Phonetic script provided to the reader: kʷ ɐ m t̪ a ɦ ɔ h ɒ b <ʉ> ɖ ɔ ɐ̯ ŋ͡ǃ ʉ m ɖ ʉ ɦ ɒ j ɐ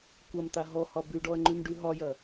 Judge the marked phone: correct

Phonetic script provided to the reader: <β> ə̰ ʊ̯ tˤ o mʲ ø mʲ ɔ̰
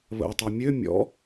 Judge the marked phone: correct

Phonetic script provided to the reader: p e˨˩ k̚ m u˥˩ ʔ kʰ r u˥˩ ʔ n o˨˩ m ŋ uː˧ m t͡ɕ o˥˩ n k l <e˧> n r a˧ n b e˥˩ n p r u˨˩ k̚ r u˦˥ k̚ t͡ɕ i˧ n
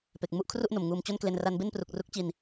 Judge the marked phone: correct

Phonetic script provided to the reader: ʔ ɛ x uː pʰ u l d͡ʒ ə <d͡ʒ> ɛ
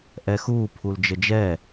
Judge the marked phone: correct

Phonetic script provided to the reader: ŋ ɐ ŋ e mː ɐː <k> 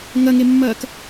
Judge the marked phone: correct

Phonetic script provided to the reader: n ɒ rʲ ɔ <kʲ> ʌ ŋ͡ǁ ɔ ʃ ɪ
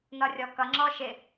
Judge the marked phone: incorrect: k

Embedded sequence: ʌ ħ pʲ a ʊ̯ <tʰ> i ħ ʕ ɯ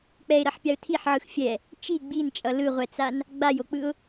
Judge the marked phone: correct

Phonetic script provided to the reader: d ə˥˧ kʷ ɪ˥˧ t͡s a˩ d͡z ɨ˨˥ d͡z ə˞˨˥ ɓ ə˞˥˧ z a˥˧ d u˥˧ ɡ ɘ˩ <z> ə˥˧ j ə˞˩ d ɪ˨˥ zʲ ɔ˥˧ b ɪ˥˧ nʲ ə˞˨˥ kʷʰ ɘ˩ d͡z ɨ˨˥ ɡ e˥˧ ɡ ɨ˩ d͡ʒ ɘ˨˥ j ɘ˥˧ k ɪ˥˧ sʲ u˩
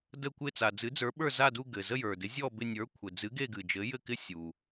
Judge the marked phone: correct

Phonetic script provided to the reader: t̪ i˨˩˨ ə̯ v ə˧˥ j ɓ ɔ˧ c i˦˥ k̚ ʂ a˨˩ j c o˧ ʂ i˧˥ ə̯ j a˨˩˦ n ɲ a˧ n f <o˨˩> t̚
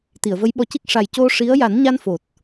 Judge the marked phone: correct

